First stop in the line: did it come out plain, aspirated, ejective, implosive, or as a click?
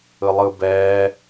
plain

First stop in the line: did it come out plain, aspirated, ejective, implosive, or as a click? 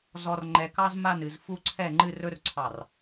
click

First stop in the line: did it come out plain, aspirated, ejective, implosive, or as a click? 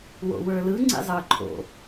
click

